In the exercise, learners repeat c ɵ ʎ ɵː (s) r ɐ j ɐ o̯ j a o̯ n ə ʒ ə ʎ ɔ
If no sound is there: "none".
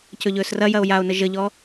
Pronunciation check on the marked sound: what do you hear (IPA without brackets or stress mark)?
s